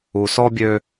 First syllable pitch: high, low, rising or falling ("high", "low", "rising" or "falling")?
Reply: low